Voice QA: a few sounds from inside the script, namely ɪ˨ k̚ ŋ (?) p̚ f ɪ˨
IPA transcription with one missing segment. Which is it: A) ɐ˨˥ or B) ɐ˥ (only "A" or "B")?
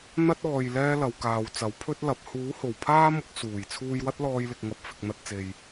A